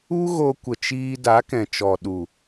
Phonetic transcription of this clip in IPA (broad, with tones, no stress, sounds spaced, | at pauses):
u˦ ɣ o˧ kʷ ə˨ t͡ʃ iː˧ d a˨˦ k ɛ̃˨ t͡ʃ ɔ˨ ɗ u˨